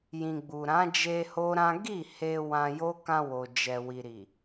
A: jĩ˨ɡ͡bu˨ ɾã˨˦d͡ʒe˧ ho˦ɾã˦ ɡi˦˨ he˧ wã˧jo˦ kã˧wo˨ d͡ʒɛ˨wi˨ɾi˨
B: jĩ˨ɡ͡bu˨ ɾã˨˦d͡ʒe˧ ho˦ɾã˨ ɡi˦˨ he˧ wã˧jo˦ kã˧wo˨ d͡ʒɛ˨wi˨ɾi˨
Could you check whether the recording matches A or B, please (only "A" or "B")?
A